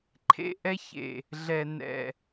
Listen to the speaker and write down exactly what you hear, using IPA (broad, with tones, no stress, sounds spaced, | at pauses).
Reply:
ǃʰ ḛ˦ ʔ ɛ˦ ç ḛ˨ | ɮ ɛ˨ n ɛ̰˨